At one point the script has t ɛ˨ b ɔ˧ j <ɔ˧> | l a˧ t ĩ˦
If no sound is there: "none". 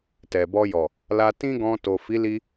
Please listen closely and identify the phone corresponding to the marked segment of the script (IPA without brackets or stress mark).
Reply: ɔ˨